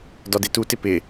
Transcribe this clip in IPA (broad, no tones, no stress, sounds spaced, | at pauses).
d ɒ d e t u t ɪ p ɪ